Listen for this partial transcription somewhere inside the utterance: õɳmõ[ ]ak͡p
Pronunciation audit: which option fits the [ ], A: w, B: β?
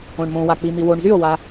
A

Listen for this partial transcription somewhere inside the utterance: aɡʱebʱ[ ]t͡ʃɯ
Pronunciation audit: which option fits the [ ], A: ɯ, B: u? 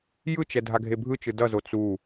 A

